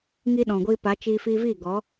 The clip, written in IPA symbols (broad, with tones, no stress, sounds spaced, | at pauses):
ŋ i˦ ɗ ɔ̃˨ ɡʷ iː˧ p a˨˦ t͡ʃ iː˧ f i˧ v iː˦˨ ɡ ɔ˨˦